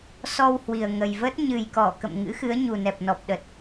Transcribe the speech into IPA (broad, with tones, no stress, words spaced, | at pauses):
sɔ˧whwi˨˩ə̯ŋə˨˩j və˦˥t̚ ɲɨ˨˩jkɔ˧˩kə̰˧˨m ŋɨ̰˧˥xɨ˨˦ə̯ ɲu˨˩nɛ˨˩p̚nɔ˨˩p̚ɗə˨˩t̚